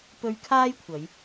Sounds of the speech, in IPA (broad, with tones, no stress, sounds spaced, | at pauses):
p ɵ˧ ɥ kʰ aː˥ j kʷʰ ɐ˨˧ j